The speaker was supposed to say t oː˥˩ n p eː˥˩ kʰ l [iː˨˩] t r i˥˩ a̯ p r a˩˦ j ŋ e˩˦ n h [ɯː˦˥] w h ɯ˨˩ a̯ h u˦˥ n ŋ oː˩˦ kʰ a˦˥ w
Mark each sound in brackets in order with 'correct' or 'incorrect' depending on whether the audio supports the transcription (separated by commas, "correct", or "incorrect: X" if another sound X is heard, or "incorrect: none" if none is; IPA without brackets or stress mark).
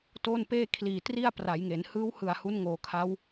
correct, correct